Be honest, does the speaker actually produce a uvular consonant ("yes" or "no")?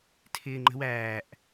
no